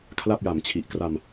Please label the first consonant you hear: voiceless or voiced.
voiceless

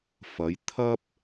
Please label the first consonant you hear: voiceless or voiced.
voiceless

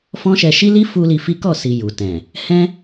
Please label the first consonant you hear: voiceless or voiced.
voiceless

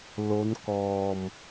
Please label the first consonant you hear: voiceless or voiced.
voiced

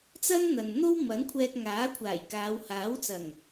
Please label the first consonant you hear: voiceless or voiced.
voiceless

